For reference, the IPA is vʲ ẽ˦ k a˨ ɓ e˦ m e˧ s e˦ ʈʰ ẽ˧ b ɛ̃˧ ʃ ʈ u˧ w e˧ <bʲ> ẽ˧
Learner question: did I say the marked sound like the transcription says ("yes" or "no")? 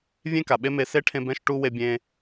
yes